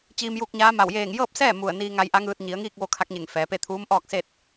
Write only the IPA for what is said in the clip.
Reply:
t͡ɕiː˧mju˧k̚ɲaː˧˥ma˧˩w jeː˧˩ŋ jɤː˥˨p̚sɛː˥˨ mu˧˩ə̯niː˧ŋa˧j ʔa˧˥ŋɯː˧t̚ ɲi˩˧ə̯ŋiː˥˨k̚ʋo˧ kʰa˧˥k̚ɲe˧˩ŋfɛː˩˧pe˥˨ t̪ʰuː˧˥mʔɔː˥˨k̚se˥˨t̚

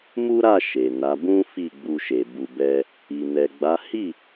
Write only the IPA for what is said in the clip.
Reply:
mu˦ɾa˦˨ ʃe˨na˨˦ bũ˦ fi˦˨ɡ͡bu˧ʃe˨ bu˨bɛ˧ | i˨ nɛ˨ɡ͡ba˨˦ hi˦˨

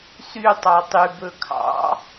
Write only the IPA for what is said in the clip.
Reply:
sy tˤɑtˤy bɵkʰɑ̰

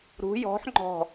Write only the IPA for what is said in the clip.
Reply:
ɾṳ jɔ̤ħ ŋ͡ǃɔ̤

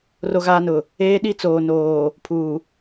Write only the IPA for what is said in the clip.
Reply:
ro˦ɣaː˦nʊ˨ | eː˦ɗi˦ t͡soː˨noː˨ | pʰuː˨

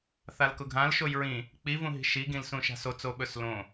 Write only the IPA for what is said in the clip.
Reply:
θalkʊɡʱãl ʃojɹĩ | k͡pi vũɦi̤ʃi ɡĩlsũʃa̤so t͡soɓɵslõ

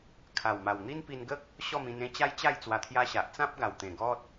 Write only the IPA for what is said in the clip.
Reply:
kʰa˨˩wma˨˩w n̪i˦npi˧nɡə˦k̚ | ɕɔ˥˧mĩ˧nẽ˦ t͡ɕa˦jt͡ɕa˥˧j t͡swa˧t̪ʰja˦ɕa˨ʔ t͡sã˦p̚ɡa˨˩wt̪ẽ˨˩ ɡɔ˦t̚

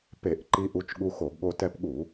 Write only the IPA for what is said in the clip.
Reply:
pe˧˩˧ʔǃi˧ ʔu˧t͡ʃɠu˧xo˧˩˧ɡɠo˧ tɛ˧pɠu˧˩˧

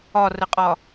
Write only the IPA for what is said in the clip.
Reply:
ɒrəqʼɒ

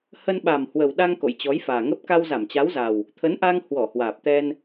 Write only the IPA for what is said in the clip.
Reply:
hə˧nɓa˨˩m hwə˨˩wɗa˧ŋ ko̰˧˨jt͡ɕɔ˨˦jfaː˨˩ŋə˦˥p̚ ka˧wza˧˩mt͡ɕa˨˦wza˨˩w | t̪ʰə˨˦nʔa˧ŋ hwɔ˧˩hwaː˨˩p̚t̪ɛ˧n

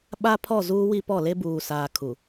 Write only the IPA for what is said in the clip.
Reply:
ɓa˦pʰɔ˦˨ zuː˦wi˦pɔ˦˨ le˦buː˨saː˨ kʰu˨

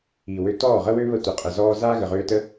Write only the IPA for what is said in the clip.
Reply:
i˨wø˧ tɔː˦˨ʁə˦wø˦ βə˦ tʷə˨qʼə˨ zɔː˦ zaː˦ɣə˨ʁøː˧tə˦

